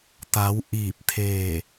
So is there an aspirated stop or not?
yes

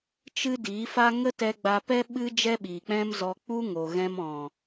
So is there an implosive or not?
yes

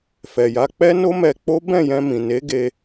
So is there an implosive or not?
no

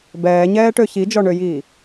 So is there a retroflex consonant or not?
yes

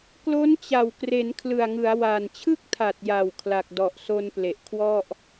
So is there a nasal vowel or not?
no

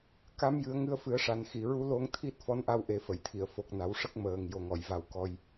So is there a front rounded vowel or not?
no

